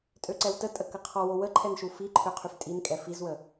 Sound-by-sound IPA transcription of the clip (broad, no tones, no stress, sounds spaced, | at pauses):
tʼ ø ǀ ɛ w t ə tʼ ə k ə qʰ ɔ w o w ə ǃʰ ɛ n ʃ u f i ǃʰ ø qʰ y f tʼ i n kʼ ɛ f i z w ə